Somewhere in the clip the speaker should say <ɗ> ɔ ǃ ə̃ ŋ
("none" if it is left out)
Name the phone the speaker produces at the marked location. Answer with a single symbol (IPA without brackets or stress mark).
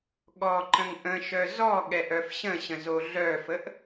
ɠ